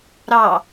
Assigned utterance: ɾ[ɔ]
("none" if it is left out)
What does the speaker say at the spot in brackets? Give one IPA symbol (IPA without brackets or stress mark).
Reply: ɑ